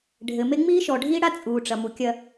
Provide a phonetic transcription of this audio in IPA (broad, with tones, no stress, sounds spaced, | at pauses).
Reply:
ɖʱ ɘ˨ m e˦ ŋ͡m iː˦ ʃ ɔ˨ ɖʱ iː˦ ɽ a˦ t͡sʼ uː˨ ʈ͡ʂ ɐ˨ m u˨ kʲ ɐ˦